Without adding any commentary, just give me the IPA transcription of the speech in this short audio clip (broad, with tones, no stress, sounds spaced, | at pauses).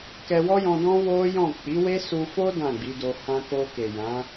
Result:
k ɛ˧ w ɔ˦ j ɔ̃˧ d ɔ̃˦ w o˦ j ɔ̃˦˨ k͡p i˨˦ w e˦ s u˧ f o˦ d ã˦˨ ɡ͡b i˨˦ d o˧ h ã˧ k o˧ k e˨ j ã˨˦